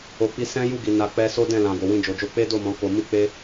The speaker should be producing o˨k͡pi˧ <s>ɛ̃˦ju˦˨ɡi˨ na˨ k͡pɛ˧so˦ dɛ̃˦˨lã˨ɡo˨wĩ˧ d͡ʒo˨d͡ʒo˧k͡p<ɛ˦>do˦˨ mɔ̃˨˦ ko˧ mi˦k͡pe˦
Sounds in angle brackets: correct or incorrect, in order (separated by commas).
correct, incorrect